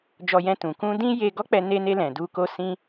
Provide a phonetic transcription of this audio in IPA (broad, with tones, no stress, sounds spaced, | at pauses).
d͡ʒ ɔ˧ j ɛ̃˧ t ũ˨ k ũ˧ d ĩ˦ j e˧ ɡ ɔ˦ k͡p ɛ˧ n e˧ n e˧ l ɛ̃˨ d u˧ k o˧ s ĩ˧